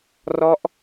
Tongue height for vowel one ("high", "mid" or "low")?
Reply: mid